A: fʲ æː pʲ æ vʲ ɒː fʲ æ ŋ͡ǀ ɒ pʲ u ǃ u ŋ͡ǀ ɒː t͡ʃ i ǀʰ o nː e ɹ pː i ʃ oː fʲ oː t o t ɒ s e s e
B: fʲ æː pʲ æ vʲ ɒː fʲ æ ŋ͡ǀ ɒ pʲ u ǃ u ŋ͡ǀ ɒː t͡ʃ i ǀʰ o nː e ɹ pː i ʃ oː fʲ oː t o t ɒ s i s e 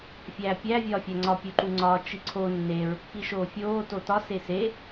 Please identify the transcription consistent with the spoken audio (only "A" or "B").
A